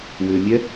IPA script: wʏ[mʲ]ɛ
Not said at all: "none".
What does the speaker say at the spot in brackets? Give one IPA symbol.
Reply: mʲ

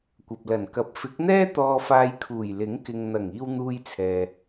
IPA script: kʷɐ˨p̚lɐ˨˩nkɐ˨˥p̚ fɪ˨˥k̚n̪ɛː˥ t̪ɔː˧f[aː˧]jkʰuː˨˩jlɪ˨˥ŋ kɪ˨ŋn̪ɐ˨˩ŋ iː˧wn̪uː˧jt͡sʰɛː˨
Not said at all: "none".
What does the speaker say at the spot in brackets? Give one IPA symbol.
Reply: aː˧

